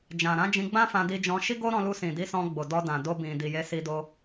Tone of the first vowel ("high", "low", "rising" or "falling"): low